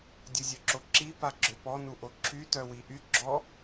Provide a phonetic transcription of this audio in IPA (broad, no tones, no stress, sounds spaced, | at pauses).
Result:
dʲ u zʲ œ ǁ o ǁ i p a ɡ͡ǁ ø p ɔ n u ʔ o ǁʰ y t œ w i ʔ y ɡ͡ǁ ɔ